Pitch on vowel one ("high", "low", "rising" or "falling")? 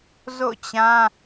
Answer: falling